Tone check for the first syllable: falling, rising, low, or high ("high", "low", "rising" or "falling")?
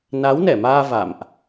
rising